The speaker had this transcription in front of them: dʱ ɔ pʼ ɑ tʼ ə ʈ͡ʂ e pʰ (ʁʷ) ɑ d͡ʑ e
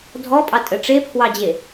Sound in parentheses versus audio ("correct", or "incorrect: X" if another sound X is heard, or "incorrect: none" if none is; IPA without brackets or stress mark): incorrect: w